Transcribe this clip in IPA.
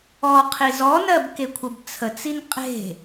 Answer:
ɔ qʰ i z ɔ n ɜ b k e kʷʰ ə b t͡sʰ ə t͡s i n qʼ e̤

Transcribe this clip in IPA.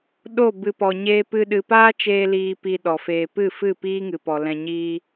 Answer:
ɗ o˦˨ b ɨ˨ p ɔ˨ ɲ eː˦ p ɨ˦ ɗ ɨ˧ p aː˦ t͡ʃ eː˧ l iː˧ p i˧ ɗ ɔ˨ f eː˧ p ɨ˦˨ f ɨ˦˨ p iː˦ ŋ ɨ˨ p ɔ˨ l ɛ̃˧ ɲ iː˦

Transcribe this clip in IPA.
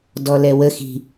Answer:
d ɔ l ɛ w ə x i̤

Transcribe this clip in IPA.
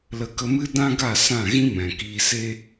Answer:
l ə˧ k ə˧ m ɨ˦ d ã˦ ɡ a˦˨ s ã˦˨ ɣ ĩ˦ m ɛ̃˨ k iː˨ s e˧

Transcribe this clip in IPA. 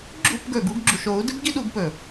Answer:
ɡ͡ǁ ṵ˦˨ p ɡ ɵː˨ ɡ u˧ ɡ ɡ͡ǁ u˨ ʃ oː˨˦ u̯ d ɨ˦ b ɡ i˦ ɗ u˨˦ ɡ p ɵ˨

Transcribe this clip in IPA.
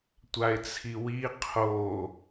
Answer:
tʷ a ɪ̯ t͡sʰ i w i qʰ o

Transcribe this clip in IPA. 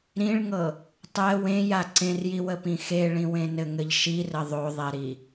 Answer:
ɾ ĩ ɭ ŋ ɤ | tˤ ɛ w ẽ j a ǀ ẽ r j i w ə p ĩ x e ɭ ĩ w ẽ n ɘ ŋ ɘ ʎ ʃ i r ə ðˤ o ðˤ e ɾ i

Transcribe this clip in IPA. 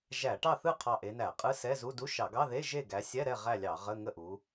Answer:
ʒ æ˧˩˧ ʈ ɑ˥˨ θ ɯ˥˨ qʰ ɑ˧˩ ʔ e˨˦ n æ˧˩˧ qʼ ɯ˧˥˧ s ɛ˧˥˧ z u˧˥˧ d u˧˥˧ ʃ ɑ˧˩˧ ɡ ɑ˧˥˧ ð e˧˥˧ ʒ e˥˨ ɡ æ˨˦ sʲ ɛ˧˥˧ ɾ ɛ˥˨ ʁ æ˥˨ lʲ ɑ˧˩˧ ʁ ə˧˥˧ ŋ ə˥˨ ʔ u˨˦

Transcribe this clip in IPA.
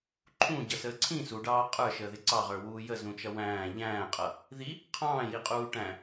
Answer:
ǃʰ ũ ɟ ʌ s əː ǀʰ ĩ s u ɖ ɑː qʼ ə˞ ʃ əː ð ɪ ǀ ɑ ʁ ə˞ w uː j ə z ũ t͡ʃ ʌ w æ̃ː ʎ æ̃ː qʼ ʌ | ð i | qʰ ɑ̃ː j i qʼ uː ʈ æ̃

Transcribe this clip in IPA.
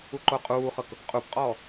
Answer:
u ǃ o qʼ uː χ ɤ k | qʼ u p qʼ ɔː

